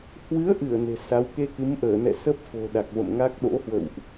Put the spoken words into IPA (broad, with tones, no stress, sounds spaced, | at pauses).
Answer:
h w ɨ˨˦ ə̯ ʔ ɨ˧˩ ə̯ n e̤˨˩ s a˨˦ w k e˧ k ɨ˨˦ m ʔ əː˧˩ n ɛ̰˧˨ s ə˦˥ p̚ f o̤˨˩ ɗ a˨˩ k̚ v ə̰˧˨ m ŋ a˦˥ k̚ ɗ o̰˧˥ h w ə̰˧˨ w ʔ